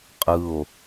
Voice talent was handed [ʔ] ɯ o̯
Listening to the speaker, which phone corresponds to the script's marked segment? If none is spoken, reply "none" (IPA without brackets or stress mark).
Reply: qʼ